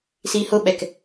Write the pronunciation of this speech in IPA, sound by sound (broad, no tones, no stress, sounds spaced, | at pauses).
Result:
s i h ʊ ɓ ɛ k